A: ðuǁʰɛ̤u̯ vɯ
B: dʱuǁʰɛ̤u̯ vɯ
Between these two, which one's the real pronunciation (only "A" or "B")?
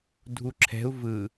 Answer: B